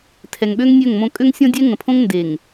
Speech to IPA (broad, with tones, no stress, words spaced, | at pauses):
tʰɛ˨ŋɓø˦ŋ nʲø˦˨ŋmõ˦ kʼø˦ŋsʲɔ̃˦dʲɛ˦ ŋə̃˨pʰõ˦ŋ nde˨ŋ